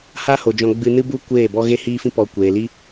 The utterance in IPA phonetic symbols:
ha˦ho˨d͡ʒɔ̃˧ ɡ͡bɨ˧nɨ˦bu˦ kʷeː˦˨bɔ˦ ɣe˦hiː˦fĩ˦ pɔ˧ kʷeː˨li˦

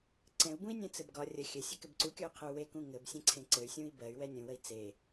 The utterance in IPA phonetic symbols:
ǀɛ̃u̯bũi̯ nʲɛ̃t͡sɘbɡɒ rʲə xʲɘsʲɘkɘb ǀukʲɔy̯qʰəu̯ wekũ ŋɘbsʲɛ̃ǀʰẽ ǀɘy̯sʲũi̯ bɜy̯wɛ nʲũwəi̯ t͡se

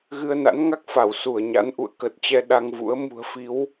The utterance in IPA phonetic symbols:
ɣɨ˧ə̯na̰˧˥nŋa˦˥k̚fa˧˩w su˧˩ə̯ɲa̰˧˥n ʔṵ˧˨ə̯kə˨˩t̚t͡ɕɛ˧ ɗa˧ŋvṵ˧˥ə̯ mṳ˨˩ə̯fi˨˦w

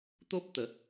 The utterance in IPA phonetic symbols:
t̪o˦p̚t̪ə˨˦

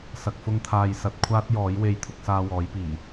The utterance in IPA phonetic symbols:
sɐ˨k̚ fʊ˧ŋt̪ʰaː˨j sɐ˧t̚kʷʰaː˥t̚ jɔː˨˥j we˨˧jt̪ʰʊ˧k̚saː˧ wɔː˨˥jpiː˨˩

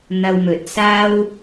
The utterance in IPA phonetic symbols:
n̪ɐ˧wmɵ˨t̚ saː˥w

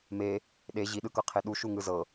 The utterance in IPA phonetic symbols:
me | ɗe ʑiɗɯkɤqʰe ɗuʃuŋɯ zɤ

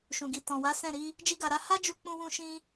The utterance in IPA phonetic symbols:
ʃũ˨ɡi˨tɔ̃˨wa˨˦ sɛ̃˦˨ ɾi˧ | d͡ʒi˦ɡa˧ɾa˦ ha˦d͡ʒu˧k͡pũ˧wũ˧ ʃĩ˦

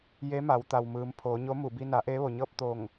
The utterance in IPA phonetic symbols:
je˧˥ma˩˧w t̪a˩wmɯː˩˧m pʰoː˩˧ɲo˧˥ mu˧˩ bi˧na˩˧ ʔeː˧˥ʋo˩ɲɤː˥˨p̚ t̪o˧˩ŋ

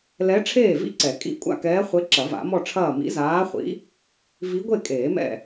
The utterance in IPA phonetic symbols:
lɛ˧˥ ʈ͡ʂʰeː˥˨vḭ˥˨ǀɛ˨˩˦ kʼḭ˧˥ kʷʼa̰˥˨kɛː˧˥χʷe˧˥ ǁɐ˨˩˦va̰˨˩˦mɔ˥˨ʈ͡ʂʰɐː˥˨ mḭ˧˥zaː˧˥χʷḭ˧˥ | vi˧˥ɡʷe˥˨kʼeː˨˩˦mɛ̰˥˨

